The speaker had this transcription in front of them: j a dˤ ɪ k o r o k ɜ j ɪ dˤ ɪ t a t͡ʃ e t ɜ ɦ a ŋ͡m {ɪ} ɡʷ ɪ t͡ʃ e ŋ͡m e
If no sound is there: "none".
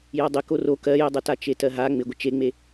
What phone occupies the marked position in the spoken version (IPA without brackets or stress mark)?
ɪ